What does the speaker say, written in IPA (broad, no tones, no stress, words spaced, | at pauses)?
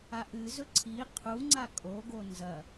aʔɨzɵ ǀʰi qʰuŋ͡ǀa kʼoɡo nzɐ